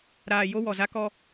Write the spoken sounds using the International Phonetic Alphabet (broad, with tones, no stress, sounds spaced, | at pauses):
ɾ aː˨ j o˦ w ɔ˨ z a˦ k ɔ˦